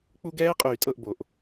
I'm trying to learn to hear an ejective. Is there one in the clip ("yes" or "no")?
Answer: yes